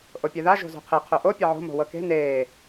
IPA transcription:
ʔopʲeða ʒo̤zo̤qʰe qʰoʔo pʲɐʕo̤ mo̤wɤke̤ neː

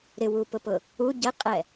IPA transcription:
ɾɪwupʊpʊ | u ɟɛqʼɛ

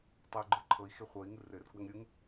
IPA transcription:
tˤeu̯ɡ͡ǃɯǃʰɤi̯ xeχʷɤi̯ ŋɯrɘr kwɘŋɾʲɯŋ

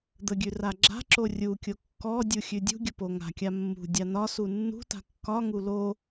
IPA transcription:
d̪əɡʲʉ raɡ͡ǁa̤ǁo rʲukʲo kːɔ dʲuxʲʉdʲṳɡʲə poŋa̤kʲa mːṳ dʲanɒsu nːṳta̤ kːɒŋu lo

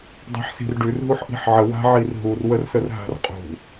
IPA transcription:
dˤa̤ħsi̤rɖʉr ɦuħʔi̤ħʕə wa̤ʕirɦur wərsərɦa̤rqʼṳ

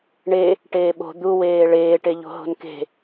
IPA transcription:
ɳe | ʈeːɓo̤ d̪uweː ɭeːʈeʎo̤ɦo̤n ke̤

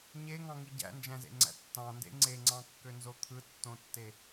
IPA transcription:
ɲeŋɑ̃ŋi ɟæ̰nd͡ʒæ̃zḛŋ͡ǀæ̰ tːɑ̃ndḛ ŋ͡ǀeŋ͡ǀɑ̃kːønzo t̪ʰɯtːõtːe

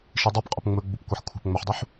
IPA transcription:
ʃidˤœpqʼʊp ŋ͡mɵɡ͡bup kʷɛħkʷʰɛ̤pŋ͡mœħdˤuħ

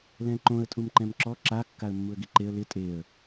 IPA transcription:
lɛ̃ǃõə̯ tʼumǃɛ̃mǁɔ ǁa kːaə̯mːuə̯ɡiǃeə̯ lɪ tʼeə̯

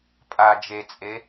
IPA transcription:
pʼa d͡ʒet͡sʼe

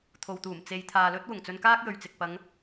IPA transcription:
t̪ʰo˨wt̪uː˨˩m t͡se˨jt̪ʰaː˨lɵ˥t̚ wʊ˨˩ŋt͡sɵ˧nkaː˥k̚ jɵ˨ɥt͡sɪ˨k̚ pɐ˨˧ŋ

